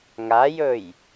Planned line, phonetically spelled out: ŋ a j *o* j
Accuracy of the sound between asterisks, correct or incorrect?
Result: incorrect